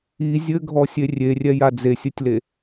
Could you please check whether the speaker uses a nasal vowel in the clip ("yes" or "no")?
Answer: no